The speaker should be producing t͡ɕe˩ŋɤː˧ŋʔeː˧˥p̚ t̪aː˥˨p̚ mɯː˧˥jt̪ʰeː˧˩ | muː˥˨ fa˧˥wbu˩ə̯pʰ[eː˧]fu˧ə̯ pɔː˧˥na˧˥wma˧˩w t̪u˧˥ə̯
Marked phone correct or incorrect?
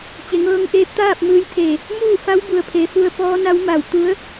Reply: incorrect